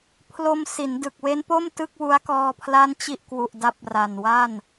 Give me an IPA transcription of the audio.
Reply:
pʰ l o˧ m s i˩˦ n d ɯ˨˩ k̚ w e˦˥ n p o˥˩ m t ɯ˥˩ k̚ w u˦˥ a̯ k ɔː˧ pʰ l a˥˩ n t͡ɕ i˥˩ ʔ k w u˨˩ ʔ d a˦˥ p̚ r a˨˩ n w a˥˩ n

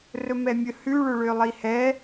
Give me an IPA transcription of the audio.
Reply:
r ɵ m ɛ mʲ ɵ h ʉ ɭ ɵ ɭ ø lˠ i h ɛ

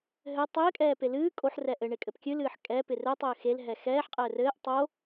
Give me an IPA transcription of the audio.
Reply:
ɦ ɘ tˤ ɘː kʼ ɛː p e l ɨː kʼ o ħ r ɛ ʔ ɘ ɳ e kʼ ɘ p kʲ ɨ l ɨː ħ kʼ ɛ p ɪ r ɘ tˤ ɘː x e l ɦ ɛ x ɛː ħ qʼ ɘː r ɘː ʔ tˤ o

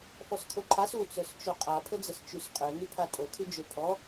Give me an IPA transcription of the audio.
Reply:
f ɔ s kʰ o ǃʰ a s u t͡s œ s t͡ʃ o qʼ a pʰ ə d͡z ə s t͡ʃ y s qʼ ø n y pʰ a tʼ o kʰ y d͡ʒ ø pʰ ɔ

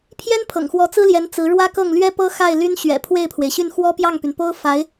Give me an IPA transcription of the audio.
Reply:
pʰ j ɛ˥ n pʰ ɤ̰˨˩ ŋ x w ɔ˧˥ t͡s ɹ̩˥ l j ɛ˧˥ n t͡s ɹ̩˧˥ ɻ w ä˥ k ɤ˥˩ ŋ l ɥ ɛ˥ p ɤ˥ x a˥˩ ɪ̯ l y˥ n ɕ ɥ ɛ̰˨˩ pʰ w e˥˩ ɪ̯ pʰ w e˩ ɪ̯ ɕ y˥˩ n x w ɔ˥ p j ɑ˥˩ ŋ p y˩ n p o˥ ʊ̯ f a˧˥ ɪ̯

